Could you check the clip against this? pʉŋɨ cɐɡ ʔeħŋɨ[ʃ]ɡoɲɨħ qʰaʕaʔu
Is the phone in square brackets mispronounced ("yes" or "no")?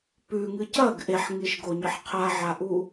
no